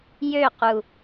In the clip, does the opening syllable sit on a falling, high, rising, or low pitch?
falling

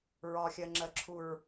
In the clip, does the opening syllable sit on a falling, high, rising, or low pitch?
low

